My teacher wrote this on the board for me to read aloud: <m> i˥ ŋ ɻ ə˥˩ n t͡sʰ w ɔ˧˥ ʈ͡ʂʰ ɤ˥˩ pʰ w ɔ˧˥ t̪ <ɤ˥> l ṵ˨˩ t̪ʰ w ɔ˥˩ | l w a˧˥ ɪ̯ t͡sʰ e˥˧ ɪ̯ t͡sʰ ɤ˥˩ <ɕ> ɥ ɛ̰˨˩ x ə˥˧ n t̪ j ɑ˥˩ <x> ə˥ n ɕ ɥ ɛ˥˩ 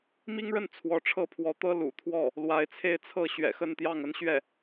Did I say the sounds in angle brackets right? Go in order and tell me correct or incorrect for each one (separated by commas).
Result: correct, correct, correct, incorrect